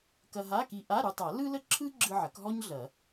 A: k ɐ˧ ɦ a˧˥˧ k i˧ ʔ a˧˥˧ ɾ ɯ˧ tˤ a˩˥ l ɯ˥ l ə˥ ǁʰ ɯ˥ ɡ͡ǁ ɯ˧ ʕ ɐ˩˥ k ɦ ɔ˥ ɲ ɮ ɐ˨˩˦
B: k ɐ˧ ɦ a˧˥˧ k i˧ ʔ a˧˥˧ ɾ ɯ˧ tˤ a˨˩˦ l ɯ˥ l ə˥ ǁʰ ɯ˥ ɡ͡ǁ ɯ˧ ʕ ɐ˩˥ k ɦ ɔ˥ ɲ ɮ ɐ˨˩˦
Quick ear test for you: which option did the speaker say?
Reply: B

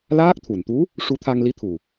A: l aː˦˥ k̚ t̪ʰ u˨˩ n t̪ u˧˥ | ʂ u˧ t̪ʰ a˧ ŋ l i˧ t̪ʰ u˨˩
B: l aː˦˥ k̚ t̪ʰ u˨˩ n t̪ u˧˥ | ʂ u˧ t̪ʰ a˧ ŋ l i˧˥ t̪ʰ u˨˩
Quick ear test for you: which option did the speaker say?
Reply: B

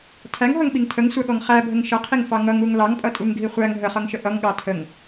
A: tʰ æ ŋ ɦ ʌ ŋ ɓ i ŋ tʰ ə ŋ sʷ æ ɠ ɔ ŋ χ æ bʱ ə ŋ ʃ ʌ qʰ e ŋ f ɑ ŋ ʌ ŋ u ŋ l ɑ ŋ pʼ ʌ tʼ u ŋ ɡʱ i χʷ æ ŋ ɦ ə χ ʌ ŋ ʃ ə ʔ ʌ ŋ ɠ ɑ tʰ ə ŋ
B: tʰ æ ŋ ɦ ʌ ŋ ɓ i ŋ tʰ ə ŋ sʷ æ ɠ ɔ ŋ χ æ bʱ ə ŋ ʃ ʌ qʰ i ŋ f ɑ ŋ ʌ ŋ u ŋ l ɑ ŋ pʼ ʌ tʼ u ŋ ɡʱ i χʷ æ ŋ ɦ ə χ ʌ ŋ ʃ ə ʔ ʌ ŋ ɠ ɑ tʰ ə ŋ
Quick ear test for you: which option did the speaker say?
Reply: B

